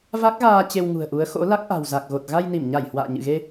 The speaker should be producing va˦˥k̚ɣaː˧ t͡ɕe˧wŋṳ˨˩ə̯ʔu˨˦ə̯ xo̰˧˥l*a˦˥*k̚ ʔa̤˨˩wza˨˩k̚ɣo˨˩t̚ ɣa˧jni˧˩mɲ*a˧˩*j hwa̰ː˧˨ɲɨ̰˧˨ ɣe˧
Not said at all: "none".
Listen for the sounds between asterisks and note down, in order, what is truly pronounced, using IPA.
a˦˥, a˧˩

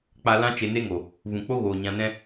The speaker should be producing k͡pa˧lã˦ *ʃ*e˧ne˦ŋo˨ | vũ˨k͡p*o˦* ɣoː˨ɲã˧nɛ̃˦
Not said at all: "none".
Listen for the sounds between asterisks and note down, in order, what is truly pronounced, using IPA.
t͡ʃ, o˦

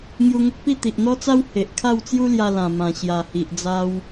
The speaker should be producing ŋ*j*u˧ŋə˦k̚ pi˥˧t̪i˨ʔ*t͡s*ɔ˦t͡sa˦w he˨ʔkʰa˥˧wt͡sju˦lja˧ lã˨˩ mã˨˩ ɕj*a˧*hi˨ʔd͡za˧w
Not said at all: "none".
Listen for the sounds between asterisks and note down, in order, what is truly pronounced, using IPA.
j, n̪, a˨˩

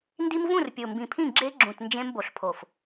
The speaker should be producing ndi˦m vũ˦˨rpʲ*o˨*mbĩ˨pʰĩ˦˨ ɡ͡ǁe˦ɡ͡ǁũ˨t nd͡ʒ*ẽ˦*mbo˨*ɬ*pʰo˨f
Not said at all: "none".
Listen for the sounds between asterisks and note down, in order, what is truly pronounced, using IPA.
o˨, ẽ˦, ɬ

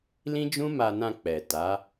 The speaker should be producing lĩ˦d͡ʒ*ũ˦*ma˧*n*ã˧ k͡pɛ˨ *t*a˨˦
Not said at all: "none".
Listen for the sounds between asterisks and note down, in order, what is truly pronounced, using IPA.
ũ˦, n, t

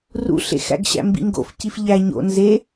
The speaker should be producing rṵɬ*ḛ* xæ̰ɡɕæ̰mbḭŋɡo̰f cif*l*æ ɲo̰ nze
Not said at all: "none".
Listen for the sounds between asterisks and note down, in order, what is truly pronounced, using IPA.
ḛ, ʎ

